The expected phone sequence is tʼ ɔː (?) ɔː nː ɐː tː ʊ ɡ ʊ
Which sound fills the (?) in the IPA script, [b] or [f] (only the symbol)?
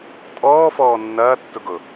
f